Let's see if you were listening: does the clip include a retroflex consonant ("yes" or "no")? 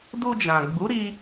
no